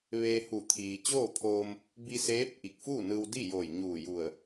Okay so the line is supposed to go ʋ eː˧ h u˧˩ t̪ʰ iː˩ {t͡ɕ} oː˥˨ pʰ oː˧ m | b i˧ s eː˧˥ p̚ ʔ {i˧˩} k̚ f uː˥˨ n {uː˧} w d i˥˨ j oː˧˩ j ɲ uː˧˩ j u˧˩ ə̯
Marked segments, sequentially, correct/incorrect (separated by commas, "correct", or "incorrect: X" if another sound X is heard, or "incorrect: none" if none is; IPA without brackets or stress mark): correct, correct, incorrect: ɯː˧